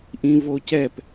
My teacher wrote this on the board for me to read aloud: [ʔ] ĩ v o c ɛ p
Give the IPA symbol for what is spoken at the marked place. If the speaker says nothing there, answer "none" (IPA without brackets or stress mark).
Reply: ʔ